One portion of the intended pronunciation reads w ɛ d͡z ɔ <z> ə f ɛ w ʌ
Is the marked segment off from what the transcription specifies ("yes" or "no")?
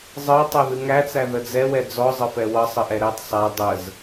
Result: yes